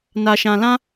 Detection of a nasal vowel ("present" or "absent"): present